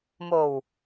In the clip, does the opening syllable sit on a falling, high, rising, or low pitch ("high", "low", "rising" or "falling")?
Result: low